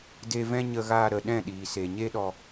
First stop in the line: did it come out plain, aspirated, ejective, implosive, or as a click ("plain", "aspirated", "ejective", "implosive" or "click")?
plain